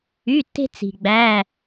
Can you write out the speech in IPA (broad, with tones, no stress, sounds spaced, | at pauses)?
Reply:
y˧˥˧ tː e̤˥ t͡s i̤˨ ɡ͡b æ˧˥˧